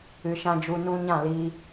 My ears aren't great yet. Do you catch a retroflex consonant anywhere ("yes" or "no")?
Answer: no